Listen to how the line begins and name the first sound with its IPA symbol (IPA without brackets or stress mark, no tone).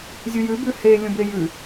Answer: zʲ